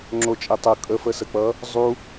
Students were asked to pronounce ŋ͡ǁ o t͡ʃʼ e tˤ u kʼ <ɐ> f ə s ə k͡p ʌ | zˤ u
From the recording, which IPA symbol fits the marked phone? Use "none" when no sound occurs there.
ə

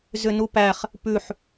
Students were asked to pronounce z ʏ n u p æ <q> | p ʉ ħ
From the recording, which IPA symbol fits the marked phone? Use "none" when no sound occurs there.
χ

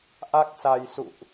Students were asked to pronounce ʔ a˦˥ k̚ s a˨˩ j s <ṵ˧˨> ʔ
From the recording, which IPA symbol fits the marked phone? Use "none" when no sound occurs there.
ṵ˧˨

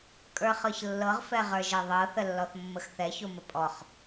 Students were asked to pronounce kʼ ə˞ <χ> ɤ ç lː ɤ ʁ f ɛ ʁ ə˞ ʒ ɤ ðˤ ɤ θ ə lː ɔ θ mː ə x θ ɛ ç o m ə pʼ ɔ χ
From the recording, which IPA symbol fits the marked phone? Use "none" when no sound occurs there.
χ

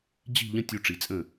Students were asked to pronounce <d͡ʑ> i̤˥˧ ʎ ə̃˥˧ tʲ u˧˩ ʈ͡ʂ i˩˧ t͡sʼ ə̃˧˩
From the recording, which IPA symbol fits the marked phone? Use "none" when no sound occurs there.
d͡ʑ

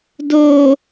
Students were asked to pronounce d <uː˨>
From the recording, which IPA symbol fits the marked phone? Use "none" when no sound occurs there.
oː˨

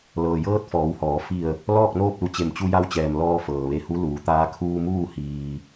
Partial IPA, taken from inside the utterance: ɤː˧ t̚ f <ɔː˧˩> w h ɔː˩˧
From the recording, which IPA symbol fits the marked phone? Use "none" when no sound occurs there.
ɔː˩˧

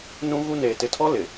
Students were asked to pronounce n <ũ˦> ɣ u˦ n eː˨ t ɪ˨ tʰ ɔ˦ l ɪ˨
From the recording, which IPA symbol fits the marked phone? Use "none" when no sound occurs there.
ũ˦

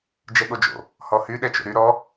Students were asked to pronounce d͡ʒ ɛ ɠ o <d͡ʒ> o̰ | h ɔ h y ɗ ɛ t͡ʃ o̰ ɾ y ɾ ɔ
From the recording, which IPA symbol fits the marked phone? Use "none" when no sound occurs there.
d͡ʒ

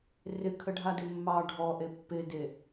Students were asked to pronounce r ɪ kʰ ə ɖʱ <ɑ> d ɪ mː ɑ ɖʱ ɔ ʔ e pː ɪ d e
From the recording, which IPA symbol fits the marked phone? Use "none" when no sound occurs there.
a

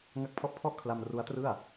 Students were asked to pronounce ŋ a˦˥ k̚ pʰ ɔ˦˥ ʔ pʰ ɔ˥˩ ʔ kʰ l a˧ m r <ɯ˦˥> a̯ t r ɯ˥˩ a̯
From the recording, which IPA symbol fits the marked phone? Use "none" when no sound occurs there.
u˦˥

